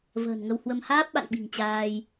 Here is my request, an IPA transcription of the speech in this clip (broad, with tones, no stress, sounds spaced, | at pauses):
v ə̤ː˨˩ n ŋ ə˧ w h w ə˧ m h aː˦˥ p̚ ɓ a̰˧˨ n ɓ i̤˨˩ ŋ t͡ɕ aː˧ j